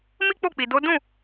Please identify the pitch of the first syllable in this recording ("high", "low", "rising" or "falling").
high